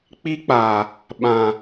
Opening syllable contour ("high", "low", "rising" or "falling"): high